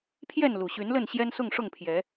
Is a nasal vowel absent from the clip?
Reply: yes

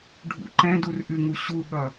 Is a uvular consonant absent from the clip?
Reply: yes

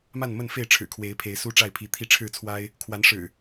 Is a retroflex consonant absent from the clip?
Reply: no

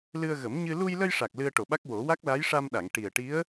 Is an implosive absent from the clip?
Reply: no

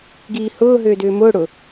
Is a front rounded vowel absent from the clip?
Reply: no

